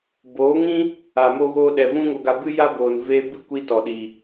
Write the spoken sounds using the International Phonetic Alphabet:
boː˨˦ŋĩ˦ | a˨mo˧ɣoː˧ ɗɛ˨vũ˦ŋo˧ɡa˧ bɨ˦ja˦boː˨n veː˧bɨ˦˨ kʷiː˦tɔ˨ɗiː˨

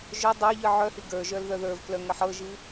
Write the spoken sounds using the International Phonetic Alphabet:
ʒœ dˤə˞ ʎɨʕœhi ɡə˞ʒœl ðœðə˞vklœ ŋəħɤʒɨ

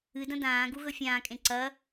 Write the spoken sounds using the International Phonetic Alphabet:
ɨdɐ̃ dãː ɡuɣɵfʲãːkʼẽ ǀɐ

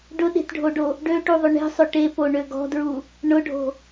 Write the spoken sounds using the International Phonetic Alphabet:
ɖʊɗe̤tɖʱoɖo | ɖøʈuðˤʏ ɳe̤sˤʏ ʈepoɳø ɡɔ̤dɹu | ɳʊɖʱo̤

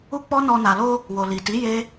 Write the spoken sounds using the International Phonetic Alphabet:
u˦k͡pɔ˦nɔ˧ na˨lo˧ | wo˨li˨ti˨˦ je˦

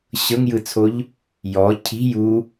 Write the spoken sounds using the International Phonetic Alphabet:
ɕɤŋjɯt͡sʰoʎ | jɔ cʰi̤ ju

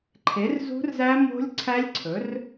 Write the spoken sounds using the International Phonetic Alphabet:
ǃʰe˩˥rzṳ˦˥rzæ˦˥ mo̤˦˥lʲǀʰæ˦˥lʲ ǀʰɵ˩˥r

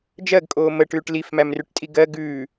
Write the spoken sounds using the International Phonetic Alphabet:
d͡ʒɜɡkʼoː məʈʉːʈ lifmæmrʉʈtʼi ɡɜ ɡʉː

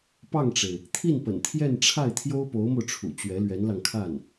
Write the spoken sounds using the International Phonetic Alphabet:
pɑ˥˩ŋʈ͡ʂe˩ɪ̯ | t̪ʰi˥˩npə̰˨˩nt̪ʰjɛ˥˧nʈ͡ʂʰa˥˩ɪ̯ t̪ʰjo˥ʊ̯po˧˥ʊ̯mo˧ʊ̯ʈ͡ʂʰṵ˨˩ t͡ɕɥɛ˧˥lɥɛ˧˥nlɑ˧ŋkʰa˥˩n

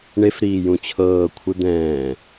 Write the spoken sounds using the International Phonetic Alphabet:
ɳefɾiː jũt͡ɕʰɤː kʷʰɯd̪ɛ̃ː

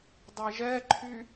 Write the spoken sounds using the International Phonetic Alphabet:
dˤɛʒɛǃʰy

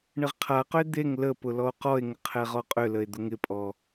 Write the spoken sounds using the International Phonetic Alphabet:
ɳɪʁqʰaqʏe̯ d̪eŋ ləpʊ lɔo̯qɔe̯ŋə qʰɛʁɔqʼʏləe̯ d̪ʊŋɪpʼɔ

